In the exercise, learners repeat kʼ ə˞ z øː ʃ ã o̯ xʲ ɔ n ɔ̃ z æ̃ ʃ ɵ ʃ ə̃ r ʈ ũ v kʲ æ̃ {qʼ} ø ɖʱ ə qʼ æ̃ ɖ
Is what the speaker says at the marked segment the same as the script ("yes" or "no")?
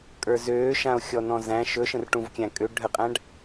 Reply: no